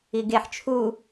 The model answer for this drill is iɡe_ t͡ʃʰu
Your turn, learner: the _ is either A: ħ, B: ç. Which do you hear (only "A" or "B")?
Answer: A